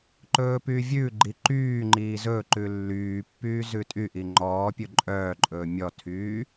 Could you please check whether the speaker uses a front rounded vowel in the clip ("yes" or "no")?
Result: yes